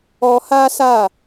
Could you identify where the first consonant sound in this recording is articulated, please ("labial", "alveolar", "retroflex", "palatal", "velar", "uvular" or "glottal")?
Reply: glottal